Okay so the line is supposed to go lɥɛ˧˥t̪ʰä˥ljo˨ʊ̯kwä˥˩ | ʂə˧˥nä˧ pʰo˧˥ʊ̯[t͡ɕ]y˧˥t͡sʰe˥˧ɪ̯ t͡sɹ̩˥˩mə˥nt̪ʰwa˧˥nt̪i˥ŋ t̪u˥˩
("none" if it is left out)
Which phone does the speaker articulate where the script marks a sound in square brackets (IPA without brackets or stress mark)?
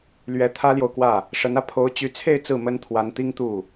t͡ɕ